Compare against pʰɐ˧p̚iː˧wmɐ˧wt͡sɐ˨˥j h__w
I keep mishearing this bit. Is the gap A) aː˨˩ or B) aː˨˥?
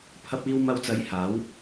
B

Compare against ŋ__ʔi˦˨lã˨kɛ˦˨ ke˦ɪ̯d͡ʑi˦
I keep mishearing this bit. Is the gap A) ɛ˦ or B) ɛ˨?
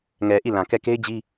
B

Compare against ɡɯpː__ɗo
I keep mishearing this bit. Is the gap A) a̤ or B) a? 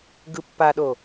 B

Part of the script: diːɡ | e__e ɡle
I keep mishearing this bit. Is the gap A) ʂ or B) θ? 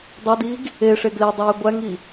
A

